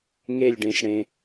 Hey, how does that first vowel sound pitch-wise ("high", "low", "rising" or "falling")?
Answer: falling